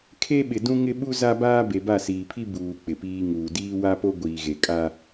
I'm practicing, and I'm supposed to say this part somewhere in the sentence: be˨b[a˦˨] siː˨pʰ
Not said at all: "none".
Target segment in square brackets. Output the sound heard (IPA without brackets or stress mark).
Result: a˦˨